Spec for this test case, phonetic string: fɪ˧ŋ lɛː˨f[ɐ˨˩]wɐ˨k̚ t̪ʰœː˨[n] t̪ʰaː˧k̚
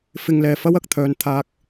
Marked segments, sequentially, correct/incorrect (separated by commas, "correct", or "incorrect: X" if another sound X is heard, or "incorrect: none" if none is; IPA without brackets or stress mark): incorrect: ɐ˥, correct